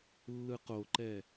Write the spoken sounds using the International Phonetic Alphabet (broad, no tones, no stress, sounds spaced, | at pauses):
lː ɯ q o ǃ ɛ